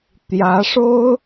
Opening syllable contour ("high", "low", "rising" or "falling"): rising